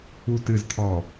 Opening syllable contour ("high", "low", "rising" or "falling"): low